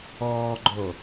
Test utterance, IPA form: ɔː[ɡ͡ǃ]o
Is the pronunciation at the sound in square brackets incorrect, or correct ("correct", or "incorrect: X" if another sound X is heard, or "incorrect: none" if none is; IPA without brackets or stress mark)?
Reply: correct